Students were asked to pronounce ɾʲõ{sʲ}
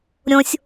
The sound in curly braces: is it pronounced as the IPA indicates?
yes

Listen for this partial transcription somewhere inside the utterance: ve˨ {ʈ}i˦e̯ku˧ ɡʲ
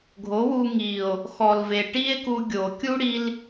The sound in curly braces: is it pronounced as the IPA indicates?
yes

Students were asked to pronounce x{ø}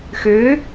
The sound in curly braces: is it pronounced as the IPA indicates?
yes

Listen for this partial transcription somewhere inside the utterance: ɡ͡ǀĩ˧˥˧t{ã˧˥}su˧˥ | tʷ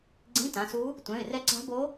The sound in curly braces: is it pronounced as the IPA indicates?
no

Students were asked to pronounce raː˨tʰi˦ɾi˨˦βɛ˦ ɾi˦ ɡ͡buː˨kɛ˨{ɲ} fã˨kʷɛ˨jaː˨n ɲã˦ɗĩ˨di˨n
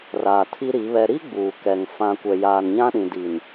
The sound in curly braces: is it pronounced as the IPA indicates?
no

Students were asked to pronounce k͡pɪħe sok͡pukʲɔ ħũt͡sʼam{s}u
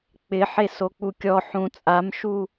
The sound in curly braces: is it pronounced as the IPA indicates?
no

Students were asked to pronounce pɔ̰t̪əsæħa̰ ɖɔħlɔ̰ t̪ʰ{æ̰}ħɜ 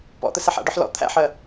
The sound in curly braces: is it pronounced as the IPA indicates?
yes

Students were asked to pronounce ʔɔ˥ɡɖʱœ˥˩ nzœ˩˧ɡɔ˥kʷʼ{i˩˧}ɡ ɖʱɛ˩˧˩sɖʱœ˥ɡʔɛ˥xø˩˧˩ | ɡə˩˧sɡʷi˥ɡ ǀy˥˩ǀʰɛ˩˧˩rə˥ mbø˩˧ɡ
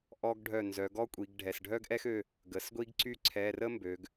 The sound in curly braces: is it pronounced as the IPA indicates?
yes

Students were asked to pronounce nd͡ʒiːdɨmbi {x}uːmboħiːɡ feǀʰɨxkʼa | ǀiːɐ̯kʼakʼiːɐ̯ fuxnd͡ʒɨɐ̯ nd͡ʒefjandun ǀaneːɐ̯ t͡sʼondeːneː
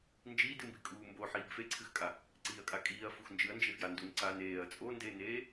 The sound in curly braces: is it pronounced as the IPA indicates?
no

